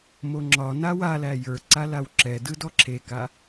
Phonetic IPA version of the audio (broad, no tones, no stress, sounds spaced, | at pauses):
m o ŋ͡ǁ ɒ n a w a l æ j ə˞ ǀ a l a w ǁ ɛ d ɯ d ɔ ǁʰ e k a